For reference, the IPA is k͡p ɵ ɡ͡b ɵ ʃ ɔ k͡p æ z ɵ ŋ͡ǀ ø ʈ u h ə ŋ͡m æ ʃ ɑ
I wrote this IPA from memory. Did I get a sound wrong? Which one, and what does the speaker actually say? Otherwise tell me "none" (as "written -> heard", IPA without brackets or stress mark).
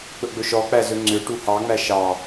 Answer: ə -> ɑ